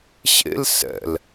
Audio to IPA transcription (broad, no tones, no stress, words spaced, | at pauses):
ɕḛl sɛ̰l